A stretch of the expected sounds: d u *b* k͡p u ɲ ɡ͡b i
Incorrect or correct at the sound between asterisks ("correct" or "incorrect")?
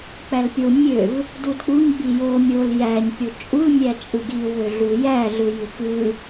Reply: incorrect